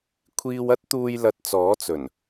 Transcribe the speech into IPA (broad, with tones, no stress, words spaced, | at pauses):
kʷʰiː˧wɐ˥t̚t̪uː˧j lɐ˧t̚t͡sɔː˨˥t͡sɵ˨˩n